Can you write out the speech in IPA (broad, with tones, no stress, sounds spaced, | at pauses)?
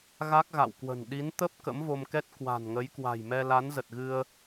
ɣ a˦˥ k̚ ɣ a̰˧˨ w k w ə̤˨˩ n ɗ i˨˦ n t̪ ə˦˥ p̚ k ə̰˧˥ m v o˧ m k ɛ˦˥ t̚ k w a̤˨˩ n ŋ ə˨˦ j k w a̤˨˩ j m ɛ˧ l a˨˦ n z ə˨˩ t̚ ɣ ɨ˧ ə̯